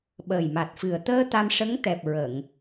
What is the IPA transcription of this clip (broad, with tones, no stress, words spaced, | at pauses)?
ɓəː˨˩jma˨˩t̚fɨ˨˩ə̯ t̪əː˧ t̪a˧mʂə˧˥ŋt̪ɛ˨˩p̚ ɹə˨˩˨ŋ